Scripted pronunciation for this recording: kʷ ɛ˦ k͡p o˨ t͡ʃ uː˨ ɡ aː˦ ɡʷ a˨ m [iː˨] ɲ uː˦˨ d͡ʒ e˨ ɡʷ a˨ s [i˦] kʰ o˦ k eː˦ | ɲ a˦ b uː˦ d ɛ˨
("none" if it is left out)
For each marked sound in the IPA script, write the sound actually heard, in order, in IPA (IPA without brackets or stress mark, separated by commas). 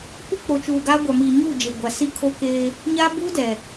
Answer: iː˨, i˦